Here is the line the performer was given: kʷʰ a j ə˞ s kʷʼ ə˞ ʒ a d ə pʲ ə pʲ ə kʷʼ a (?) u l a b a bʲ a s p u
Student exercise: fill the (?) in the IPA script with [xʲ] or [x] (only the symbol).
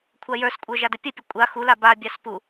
x